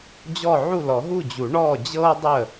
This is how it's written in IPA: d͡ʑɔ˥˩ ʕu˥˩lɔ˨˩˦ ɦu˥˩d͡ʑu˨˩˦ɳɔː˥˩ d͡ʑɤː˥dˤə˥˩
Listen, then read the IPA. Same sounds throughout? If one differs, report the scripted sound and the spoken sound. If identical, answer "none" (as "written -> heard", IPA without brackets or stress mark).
none